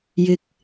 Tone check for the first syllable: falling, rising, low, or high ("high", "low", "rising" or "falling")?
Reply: low